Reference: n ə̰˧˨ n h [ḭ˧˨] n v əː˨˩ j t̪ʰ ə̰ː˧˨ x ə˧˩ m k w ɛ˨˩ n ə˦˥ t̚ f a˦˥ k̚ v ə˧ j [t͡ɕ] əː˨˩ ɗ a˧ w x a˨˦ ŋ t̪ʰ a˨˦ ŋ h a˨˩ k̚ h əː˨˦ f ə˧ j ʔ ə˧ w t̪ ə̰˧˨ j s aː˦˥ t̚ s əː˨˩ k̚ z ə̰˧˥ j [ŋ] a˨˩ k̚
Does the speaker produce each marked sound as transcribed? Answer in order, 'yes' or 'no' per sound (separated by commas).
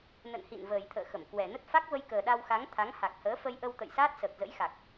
yes, no, no